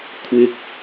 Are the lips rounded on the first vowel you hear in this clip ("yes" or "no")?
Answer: no